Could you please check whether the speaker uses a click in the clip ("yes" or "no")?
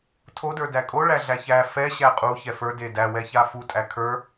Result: no